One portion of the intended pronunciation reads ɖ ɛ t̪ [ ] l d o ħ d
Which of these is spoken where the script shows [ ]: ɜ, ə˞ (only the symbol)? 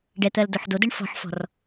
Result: ɜ